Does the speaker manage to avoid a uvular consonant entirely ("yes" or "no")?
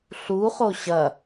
no